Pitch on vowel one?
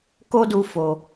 high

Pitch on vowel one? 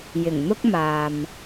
low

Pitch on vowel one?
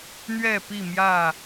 falling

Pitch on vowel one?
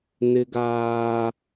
high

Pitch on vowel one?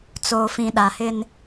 low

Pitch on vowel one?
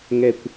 low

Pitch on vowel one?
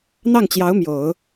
falling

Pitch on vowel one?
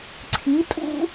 rising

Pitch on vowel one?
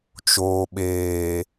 low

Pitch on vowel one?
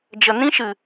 low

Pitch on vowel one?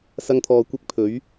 high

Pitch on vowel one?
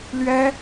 high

